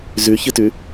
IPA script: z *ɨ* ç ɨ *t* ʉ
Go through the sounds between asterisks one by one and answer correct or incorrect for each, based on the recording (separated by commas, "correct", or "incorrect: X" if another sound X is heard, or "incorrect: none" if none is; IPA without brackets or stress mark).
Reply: incorrect: ʉ, correct